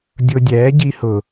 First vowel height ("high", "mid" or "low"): high